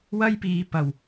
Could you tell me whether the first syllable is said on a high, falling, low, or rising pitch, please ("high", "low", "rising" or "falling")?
high